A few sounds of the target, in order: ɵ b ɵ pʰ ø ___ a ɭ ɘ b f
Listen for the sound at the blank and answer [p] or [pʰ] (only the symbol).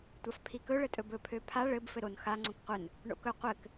pʰ